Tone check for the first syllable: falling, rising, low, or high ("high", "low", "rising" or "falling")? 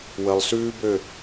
low